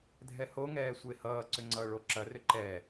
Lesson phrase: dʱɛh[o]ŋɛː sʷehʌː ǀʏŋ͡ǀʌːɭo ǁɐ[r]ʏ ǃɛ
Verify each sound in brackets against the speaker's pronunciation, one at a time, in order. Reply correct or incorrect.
correct, correct

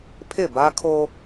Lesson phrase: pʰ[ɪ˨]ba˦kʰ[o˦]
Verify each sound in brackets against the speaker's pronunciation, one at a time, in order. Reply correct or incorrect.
incorrect, correct

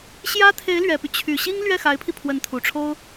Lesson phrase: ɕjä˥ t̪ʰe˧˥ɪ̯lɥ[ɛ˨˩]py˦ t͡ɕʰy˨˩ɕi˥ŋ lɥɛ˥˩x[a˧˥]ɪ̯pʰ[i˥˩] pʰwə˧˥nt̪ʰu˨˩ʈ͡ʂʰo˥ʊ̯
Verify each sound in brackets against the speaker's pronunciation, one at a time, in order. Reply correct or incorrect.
correct, correct, incorrect

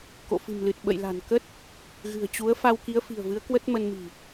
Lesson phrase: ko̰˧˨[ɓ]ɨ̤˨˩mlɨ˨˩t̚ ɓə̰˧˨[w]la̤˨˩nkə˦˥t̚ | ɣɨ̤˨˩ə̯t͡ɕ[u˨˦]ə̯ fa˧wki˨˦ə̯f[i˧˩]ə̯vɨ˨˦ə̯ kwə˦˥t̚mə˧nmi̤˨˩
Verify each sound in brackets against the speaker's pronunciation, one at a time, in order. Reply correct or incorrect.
incorrect, incorrect, correct, incorrect

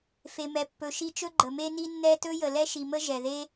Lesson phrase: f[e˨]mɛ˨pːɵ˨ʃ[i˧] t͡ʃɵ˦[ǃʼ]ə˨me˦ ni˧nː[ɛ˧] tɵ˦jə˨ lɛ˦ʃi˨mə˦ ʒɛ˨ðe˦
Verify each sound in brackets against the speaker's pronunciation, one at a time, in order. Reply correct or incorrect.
correct, correct, incorrect, correct

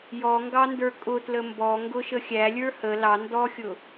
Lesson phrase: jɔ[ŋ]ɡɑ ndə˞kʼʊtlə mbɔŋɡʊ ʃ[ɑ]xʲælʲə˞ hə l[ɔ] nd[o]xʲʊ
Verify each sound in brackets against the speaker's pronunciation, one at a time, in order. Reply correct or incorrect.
correct, incorrect, incorrect, incorrect

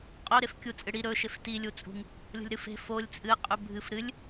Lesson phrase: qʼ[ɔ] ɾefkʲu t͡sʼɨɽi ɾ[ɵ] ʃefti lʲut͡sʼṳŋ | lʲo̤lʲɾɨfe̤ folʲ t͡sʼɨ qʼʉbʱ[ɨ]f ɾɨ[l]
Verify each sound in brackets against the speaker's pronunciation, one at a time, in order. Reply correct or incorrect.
incorrect, correct, correct, incorrect

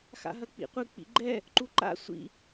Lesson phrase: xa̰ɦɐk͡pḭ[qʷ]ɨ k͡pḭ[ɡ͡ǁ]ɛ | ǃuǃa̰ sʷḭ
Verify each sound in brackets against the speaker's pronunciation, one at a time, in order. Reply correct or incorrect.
correct, incorrect

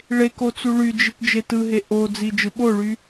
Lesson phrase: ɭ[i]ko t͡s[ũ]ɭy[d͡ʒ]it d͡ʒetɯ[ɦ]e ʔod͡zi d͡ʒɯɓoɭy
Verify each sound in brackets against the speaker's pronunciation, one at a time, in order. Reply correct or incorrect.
incorrect, incorrect, correct, correct

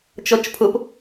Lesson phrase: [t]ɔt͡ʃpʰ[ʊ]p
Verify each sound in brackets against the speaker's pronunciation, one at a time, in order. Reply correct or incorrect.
incorrect, correct

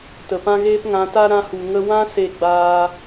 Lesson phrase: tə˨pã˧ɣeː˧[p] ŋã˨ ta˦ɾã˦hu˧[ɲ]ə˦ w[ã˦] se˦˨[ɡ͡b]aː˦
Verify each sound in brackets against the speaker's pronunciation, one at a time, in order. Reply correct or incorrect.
correct, incorrect, correct, correct

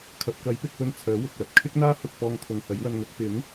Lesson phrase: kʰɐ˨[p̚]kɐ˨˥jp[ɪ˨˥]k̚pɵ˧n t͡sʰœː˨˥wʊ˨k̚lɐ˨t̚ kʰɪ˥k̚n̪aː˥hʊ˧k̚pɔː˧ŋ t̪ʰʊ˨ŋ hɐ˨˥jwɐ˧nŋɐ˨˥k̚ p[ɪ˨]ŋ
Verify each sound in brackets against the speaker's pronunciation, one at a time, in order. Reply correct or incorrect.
correct, incorrect, incorrect

